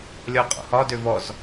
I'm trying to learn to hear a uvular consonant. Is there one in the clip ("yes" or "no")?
yes